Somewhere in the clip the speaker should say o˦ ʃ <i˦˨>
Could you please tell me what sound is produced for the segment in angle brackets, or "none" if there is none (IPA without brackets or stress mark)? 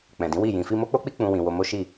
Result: i˦˨